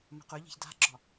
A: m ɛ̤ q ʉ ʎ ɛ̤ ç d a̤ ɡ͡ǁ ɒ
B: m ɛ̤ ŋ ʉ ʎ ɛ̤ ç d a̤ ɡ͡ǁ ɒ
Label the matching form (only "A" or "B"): A